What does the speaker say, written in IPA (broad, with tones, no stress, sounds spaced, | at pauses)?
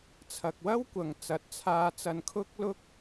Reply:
t͡sʰ ɐ˨ k̚ w ɐ˥ w kʷ ɐ˨ ŋ t͡s ɐ˨ t̚ t͡sʰ aː˧ t͡s ɐ˧ n kʰ ʊ˥ k̚ l ʊ˥ k̚